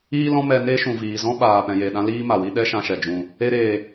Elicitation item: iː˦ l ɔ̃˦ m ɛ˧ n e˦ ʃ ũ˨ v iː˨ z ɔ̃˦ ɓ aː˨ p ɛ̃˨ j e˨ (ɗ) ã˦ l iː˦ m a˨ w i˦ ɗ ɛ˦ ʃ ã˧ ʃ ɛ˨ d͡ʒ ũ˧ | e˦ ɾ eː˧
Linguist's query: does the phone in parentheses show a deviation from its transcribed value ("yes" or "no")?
no